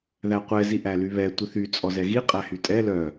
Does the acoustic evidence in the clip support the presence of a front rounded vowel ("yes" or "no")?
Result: yes